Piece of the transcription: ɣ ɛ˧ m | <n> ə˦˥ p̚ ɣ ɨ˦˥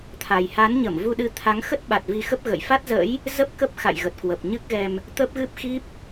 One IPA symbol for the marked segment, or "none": t̪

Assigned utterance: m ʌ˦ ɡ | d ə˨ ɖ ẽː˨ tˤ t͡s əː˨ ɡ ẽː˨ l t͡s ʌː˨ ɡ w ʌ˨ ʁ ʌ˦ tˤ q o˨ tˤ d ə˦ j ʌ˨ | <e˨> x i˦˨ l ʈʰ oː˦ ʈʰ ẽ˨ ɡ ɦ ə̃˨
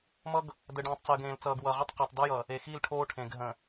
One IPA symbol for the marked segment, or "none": e˨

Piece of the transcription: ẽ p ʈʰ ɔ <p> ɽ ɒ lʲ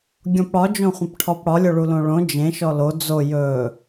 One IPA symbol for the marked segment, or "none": p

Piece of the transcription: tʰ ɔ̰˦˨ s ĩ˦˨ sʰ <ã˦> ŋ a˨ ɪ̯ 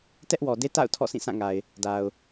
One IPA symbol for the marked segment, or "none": ã˦˨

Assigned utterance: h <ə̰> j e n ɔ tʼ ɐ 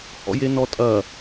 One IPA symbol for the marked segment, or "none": ɔ̰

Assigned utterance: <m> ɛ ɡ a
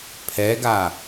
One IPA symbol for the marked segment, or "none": pʰ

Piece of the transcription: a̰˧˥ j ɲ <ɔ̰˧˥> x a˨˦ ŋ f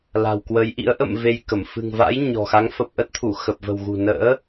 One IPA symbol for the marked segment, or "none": ɔ̤˨˩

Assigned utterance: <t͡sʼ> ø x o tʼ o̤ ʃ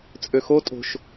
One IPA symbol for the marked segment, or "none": t͡sʼ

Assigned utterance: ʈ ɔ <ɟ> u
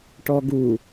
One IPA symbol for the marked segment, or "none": ɡ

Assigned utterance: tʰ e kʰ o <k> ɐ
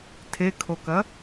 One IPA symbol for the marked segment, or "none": k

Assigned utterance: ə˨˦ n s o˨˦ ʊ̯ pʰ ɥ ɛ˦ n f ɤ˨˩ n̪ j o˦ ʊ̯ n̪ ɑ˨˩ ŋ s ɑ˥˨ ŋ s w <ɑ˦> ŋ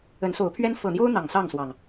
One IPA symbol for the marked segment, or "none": ɑ˨˩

